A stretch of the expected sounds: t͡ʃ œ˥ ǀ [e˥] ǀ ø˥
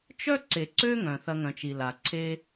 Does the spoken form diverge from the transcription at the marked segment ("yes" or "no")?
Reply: yes